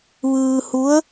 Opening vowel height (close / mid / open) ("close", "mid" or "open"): close